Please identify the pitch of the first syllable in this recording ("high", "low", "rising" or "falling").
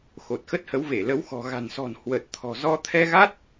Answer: low